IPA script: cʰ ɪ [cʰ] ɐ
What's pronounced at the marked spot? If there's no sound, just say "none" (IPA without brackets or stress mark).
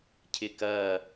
k